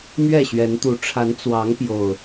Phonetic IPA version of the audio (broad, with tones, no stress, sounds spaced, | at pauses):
m ɥ ɛ˥˨ ɕ ɥ ɛ˨˦ n t̪ u˨˦ ʈ͡ʂʰ a˨˦ n t͡s w ɑ˨˦ ŋ p j o˨˩ ʊ̯